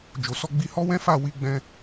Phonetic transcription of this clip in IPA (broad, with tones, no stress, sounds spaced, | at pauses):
d͡ʒ o˨ s ɔ˧ ɡ͡b i˧ h ɔ˦ w ɛ̃˦ f a˦˨ w i˧ ɡ͡b ɛ̃˧